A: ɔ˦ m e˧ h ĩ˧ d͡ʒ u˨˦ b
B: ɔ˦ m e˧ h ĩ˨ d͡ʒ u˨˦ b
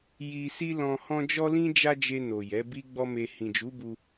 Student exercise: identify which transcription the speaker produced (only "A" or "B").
B